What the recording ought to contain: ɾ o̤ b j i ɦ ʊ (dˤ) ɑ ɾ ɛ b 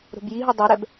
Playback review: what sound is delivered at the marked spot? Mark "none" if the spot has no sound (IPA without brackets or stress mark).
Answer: dˤ